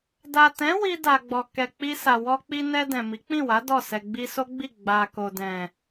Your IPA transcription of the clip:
da˨tɛ̃˨˦ wi˧da˨ɡ͡bɔ˨ kɛ˨ k͡pi˧sa˨ wɔ˧k͡pi˧ nɛ˧ dɛ̃˨mi˨˦k͡pĩ˦˨wa˨˦ dɔ˦˨sɛ˧ ɡ͡bi˧so˦ɡ͡bi˦˨ ɡ͡ba˧ ko˨dɛ̃˨

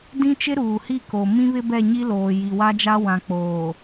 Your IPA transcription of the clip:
dĩ˦t͡ʃɪ˦ ɾuː˨hi˦˨ko˨ mĩ˦βɪ˦bɛ˦˨ ɲi˦loː˨ ji˨wa˦d͡ʒa˦ wã˨k͡poː˨

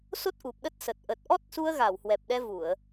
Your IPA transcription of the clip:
so˦˥t̚ʔu˨˩p̚ɗə˦˥t̚sə˨˩t̚ ʔə˨˩t̚ʔɔ˦˥t̚su˧ə̯ɣa˧˩w hwɛ˨˩p̚ɗɛ˧vu˧˩˨ə̯

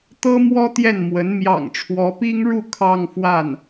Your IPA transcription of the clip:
t̪ɤ˥mwɔ˥ t̪jɛ˥˩nmwə˧˥n mjɑ̰˨˩ŋʈ͡ʂʰwɔ˧˥pi˥ŋɻu˥˧ kʰɑ˥˧ŋfwa˥˩n

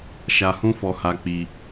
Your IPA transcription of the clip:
ʃa˧hũ˦ fɔ˧ha˧ k͡pi˧

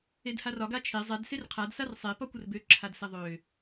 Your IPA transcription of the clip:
edharɒ ɡat͡ʃʰe zˤɛd serqʰad sarsˤe pɒkʷərbø ǁʰadsɛðˤø

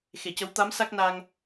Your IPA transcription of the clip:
xe˨˩˨cə˧˥w t̪a˧˥m sa˦˥k̚na˧ŋ

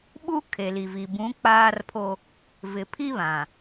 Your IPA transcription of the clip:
ɓu˦kʰe˨li˨vi˨ bũ˨˦k͡paː˦rpʰo˦ | vɪ˨pʰi˦βã˨

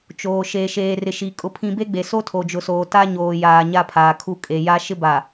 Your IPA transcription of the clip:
t͡ʃoː˨ ʃeː˨ʃeː˨rɪ˨ ʃi˨ kʼʊ˦pʰĩ˦ be˦ɡ͡be˨ so˦tʰo˨d͡ʒʊ˨soː˨ ta˦ɲoː˨jaː˨ ɲa˦pʰaː˨kʰu˦ kʼe˨ja˦ ʃɪ˦ba˨

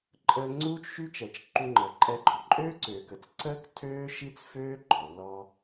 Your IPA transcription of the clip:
ǃʼəː˧ ŋ͡ǀuː˥t͡ʃʃy˥t͡ʃɛ˩t͡ʃ ǃu˧ŋ͡ǃəː˩ǃʼɛ˧ɡ͡ǃɔ˩ ǃʼøː˥ǀøː˩kə˩t͡s ǀəː˥k tʰøː˥ʃi˥t͡sføː˥ ɡ͡ǃɔ˩lːɔ˧

